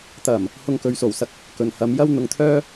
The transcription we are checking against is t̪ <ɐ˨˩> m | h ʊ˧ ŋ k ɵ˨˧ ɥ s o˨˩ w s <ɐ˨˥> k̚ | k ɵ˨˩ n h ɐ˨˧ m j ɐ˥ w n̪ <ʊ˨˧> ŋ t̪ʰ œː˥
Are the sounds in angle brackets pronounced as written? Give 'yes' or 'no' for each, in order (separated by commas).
yes, no, yes